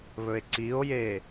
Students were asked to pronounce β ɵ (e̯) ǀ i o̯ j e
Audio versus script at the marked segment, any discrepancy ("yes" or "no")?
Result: no